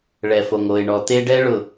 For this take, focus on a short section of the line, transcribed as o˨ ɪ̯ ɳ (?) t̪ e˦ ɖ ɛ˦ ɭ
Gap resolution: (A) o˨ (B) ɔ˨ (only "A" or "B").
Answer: B